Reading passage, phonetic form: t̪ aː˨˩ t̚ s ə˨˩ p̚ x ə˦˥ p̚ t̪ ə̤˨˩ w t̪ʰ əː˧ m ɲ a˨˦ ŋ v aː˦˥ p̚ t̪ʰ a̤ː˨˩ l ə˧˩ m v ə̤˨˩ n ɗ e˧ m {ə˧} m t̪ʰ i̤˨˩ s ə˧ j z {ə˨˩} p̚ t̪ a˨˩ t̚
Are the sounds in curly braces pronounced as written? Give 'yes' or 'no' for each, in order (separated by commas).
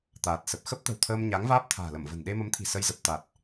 no, yes